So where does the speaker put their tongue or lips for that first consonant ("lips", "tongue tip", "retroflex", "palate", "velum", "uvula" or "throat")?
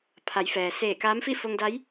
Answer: lips